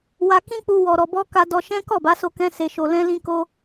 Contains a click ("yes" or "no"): no